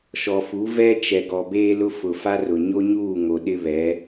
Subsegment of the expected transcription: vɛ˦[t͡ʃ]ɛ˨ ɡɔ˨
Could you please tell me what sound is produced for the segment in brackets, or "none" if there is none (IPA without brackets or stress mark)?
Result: t͡ʃ